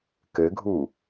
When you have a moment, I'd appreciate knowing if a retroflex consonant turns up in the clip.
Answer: no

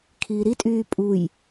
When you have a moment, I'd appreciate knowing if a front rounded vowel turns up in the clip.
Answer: yes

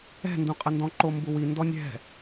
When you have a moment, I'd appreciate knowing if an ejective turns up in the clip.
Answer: yes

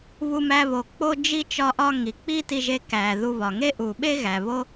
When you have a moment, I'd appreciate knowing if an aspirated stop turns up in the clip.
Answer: no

